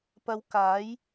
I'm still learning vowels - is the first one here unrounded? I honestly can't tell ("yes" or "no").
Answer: yes